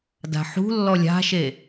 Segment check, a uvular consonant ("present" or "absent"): absent